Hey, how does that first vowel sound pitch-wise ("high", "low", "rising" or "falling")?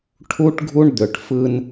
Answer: high